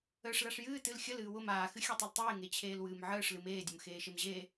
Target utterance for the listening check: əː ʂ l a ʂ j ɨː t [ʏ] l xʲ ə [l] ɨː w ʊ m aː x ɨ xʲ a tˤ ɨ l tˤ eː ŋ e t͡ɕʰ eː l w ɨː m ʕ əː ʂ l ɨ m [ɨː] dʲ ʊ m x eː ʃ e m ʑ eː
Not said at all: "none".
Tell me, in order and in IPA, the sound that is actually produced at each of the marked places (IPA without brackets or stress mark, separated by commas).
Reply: ɨ, l, eː